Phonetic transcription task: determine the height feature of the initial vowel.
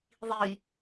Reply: high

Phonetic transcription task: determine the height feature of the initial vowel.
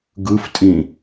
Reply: high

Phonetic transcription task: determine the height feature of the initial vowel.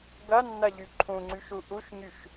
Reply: low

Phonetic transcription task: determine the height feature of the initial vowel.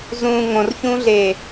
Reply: high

